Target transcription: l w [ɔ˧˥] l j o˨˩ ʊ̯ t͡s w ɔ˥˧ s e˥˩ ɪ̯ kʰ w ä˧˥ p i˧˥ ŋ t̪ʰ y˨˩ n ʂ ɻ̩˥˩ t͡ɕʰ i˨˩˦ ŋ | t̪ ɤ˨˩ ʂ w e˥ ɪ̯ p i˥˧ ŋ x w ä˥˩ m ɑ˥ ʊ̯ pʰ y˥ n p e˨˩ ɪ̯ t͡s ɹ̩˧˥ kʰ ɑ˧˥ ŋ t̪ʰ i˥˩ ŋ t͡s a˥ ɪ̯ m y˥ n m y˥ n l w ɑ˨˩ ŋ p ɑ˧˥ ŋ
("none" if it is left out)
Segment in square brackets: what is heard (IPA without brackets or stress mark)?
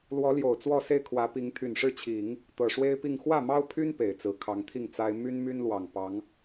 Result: ɔ˧˥